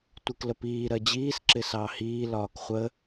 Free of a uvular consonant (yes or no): no